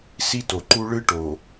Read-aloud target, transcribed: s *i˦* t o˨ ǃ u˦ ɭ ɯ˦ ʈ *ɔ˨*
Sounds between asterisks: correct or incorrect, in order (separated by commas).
correct, incorrect